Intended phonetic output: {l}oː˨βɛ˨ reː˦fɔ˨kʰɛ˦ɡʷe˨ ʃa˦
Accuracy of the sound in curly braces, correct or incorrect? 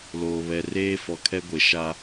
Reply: correct